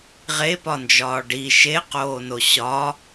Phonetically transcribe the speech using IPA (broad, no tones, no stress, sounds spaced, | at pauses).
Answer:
ʁ e p ɒ n d͡ʒ ɒː ɖ i ʃ e q oː n o ɕ ɒ